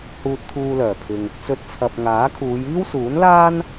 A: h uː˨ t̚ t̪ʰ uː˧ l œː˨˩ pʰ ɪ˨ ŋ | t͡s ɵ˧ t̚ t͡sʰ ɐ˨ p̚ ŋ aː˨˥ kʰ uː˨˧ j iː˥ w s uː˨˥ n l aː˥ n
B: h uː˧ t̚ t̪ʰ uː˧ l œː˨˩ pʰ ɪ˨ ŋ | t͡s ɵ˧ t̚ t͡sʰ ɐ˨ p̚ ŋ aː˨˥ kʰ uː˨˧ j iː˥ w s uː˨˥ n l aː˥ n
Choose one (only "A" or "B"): B